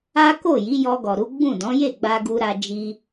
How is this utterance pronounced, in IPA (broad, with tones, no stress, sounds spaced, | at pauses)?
a˦ k o˦˨ j i˨˦ j ɔ˧ ɡ ɔ˨ ɾ u˨˦ ɡ͡b ũ˦˨ d ɔ̃˨˦ j e˦˨ ɡ͡b a˧ ɡ u˧ ɾ a˧ d͡ʒ i˧